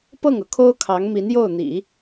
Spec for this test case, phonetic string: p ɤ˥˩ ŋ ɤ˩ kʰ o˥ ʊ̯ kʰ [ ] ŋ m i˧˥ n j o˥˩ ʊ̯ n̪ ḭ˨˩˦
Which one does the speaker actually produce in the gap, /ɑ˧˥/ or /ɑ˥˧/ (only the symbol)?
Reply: ɑ˧˥